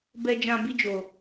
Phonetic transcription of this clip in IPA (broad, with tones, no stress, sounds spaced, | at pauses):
b ɛ˦ d͡ʒ ã˦ b i˦ d͡ʒ o˧